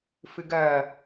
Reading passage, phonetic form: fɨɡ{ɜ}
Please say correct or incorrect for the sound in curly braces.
correct